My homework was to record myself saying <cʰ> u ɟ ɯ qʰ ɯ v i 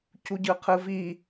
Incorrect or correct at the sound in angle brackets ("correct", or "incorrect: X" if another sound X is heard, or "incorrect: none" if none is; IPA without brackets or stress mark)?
correct